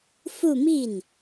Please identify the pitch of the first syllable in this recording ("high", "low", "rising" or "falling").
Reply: falling